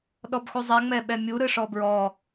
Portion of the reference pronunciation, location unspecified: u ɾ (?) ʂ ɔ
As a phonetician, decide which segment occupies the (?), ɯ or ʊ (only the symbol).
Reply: ɯ